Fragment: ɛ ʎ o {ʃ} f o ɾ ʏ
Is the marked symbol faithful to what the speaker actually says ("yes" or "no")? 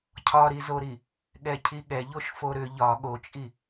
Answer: yes